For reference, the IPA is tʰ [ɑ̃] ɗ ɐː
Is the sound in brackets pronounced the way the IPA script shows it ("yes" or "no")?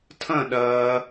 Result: no